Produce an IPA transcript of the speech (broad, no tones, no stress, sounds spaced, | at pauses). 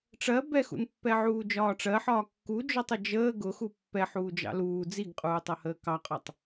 ʈ͡ʂ ɜ b ɛ x ṵ n pː ɛ ʕ uː d͡ʒ ɒː ʈ͡ʂ ɜ ħ ɒː kː u d͡ʒ ɔ tˤ ə d͡ʒ əː ɡ ʊ x u pː ɛ ħ uː d͡ʒ ɑ̰ l uː d͡z i ɡ qʼ uː tˤ ʌ h əː k ɑ qʼ ɒ tˤ